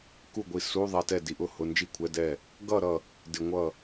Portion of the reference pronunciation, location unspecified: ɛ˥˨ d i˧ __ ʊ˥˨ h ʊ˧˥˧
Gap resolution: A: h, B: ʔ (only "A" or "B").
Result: B